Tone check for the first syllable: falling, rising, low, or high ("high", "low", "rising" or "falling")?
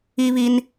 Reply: high